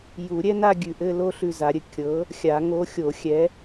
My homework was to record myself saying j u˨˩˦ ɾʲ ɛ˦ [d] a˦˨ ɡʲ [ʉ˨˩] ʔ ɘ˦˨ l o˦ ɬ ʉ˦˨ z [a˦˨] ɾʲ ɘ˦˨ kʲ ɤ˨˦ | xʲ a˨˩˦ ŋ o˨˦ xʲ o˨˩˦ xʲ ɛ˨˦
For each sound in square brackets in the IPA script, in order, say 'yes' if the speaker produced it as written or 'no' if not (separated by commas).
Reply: no, yes, no